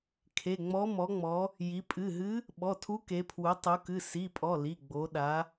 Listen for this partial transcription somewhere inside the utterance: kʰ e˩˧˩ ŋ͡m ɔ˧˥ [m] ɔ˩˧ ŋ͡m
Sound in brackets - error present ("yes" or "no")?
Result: no